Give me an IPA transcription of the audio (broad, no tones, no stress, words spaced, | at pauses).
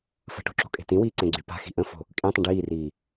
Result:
fə̤ʈo̤ ǁo̤kʼe̤tĩwiː ǀẽɡ͡ǀypa̤xi̤ ʔə̃fo̤ | kʼĩtˤə̃ ɖiːriː